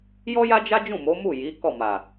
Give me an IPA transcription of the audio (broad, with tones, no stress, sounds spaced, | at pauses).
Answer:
j ɔ˦ j a˦ d͡ʒ a˦ d͡ʒ ũ˦˨ m o˨˦ m u˦˨ j i˨˦ k ɔ˦˨ m a˨